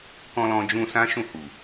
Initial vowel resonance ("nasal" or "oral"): nasal